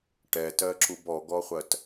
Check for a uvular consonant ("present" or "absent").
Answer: present